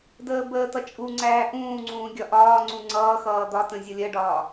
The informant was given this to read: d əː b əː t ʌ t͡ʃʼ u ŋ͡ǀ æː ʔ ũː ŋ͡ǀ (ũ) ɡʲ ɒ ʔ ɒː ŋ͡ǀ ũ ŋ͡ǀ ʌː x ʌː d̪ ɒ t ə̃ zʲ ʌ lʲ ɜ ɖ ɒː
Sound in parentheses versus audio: incorrect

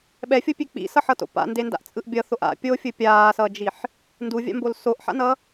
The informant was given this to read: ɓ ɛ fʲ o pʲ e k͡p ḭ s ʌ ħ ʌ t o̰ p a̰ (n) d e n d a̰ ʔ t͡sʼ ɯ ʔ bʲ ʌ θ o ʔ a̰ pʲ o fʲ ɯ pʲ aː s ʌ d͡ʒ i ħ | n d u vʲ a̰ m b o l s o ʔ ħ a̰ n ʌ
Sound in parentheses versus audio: correct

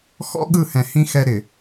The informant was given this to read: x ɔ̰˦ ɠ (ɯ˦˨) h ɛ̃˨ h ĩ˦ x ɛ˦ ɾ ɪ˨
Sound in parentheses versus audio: correct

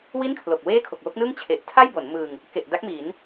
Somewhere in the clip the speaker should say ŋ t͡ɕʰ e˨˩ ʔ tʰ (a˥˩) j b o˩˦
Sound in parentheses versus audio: correct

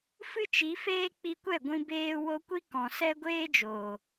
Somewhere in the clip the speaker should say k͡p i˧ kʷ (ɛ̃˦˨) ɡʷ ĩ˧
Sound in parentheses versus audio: incorrect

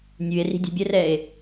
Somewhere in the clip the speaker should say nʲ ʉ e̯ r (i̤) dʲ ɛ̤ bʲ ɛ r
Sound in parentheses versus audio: correct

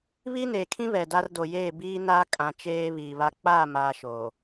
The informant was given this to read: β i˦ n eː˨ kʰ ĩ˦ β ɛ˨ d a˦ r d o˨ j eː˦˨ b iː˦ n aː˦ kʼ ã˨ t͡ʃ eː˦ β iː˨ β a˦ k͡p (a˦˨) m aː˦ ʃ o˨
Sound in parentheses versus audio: correct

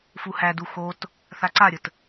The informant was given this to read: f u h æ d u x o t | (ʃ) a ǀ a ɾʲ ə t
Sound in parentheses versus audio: incorrect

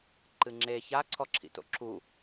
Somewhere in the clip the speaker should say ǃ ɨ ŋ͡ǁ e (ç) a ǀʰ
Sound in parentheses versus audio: correct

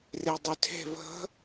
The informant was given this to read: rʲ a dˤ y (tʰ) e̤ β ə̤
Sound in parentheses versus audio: correct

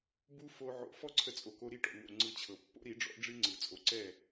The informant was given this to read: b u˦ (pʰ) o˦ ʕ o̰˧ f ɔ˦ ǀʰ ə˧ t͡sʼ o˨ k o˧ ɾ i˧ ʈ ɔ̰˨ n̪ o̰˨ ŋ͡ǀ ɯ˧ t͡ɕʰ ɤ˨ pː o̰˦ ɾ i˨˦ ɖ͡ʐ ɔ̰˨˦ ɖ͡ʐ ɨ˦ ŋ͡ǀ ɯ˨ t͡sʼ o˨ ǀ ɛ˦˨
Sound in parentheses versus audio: incorrect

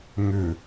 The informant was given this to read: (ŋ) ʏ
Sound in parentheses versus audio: correct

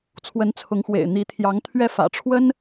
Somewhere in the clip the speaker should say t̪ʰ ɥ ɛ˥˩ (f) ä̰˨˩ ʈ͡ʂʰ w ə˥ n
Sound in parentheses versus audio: correct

